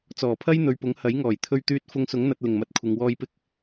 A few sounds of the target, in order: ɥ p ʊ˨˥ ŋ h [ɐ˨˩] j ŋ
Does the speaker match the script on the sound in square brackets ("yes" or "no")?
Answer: no